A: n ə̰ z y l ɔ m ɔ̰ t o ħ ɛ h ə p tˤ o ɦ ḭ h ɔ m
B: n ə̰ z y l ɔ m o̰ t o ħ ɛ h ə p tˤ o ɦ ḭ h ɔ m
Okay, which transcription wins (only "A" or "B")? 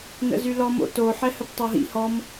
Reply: B